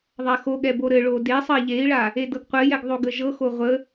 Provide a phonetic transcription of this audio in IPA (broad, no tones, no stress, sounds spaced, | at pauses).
ðˤ a x o ɠ ɛ b o ɾ ɘ ɭ o d e sˤ ə i̯ ʎ e i̯ ɭ a | e d ɤ ɡ qʷ ɘ j ɛ ɡ ðˤ o ɡ ə ʒ ɤ x o ʁʷ ə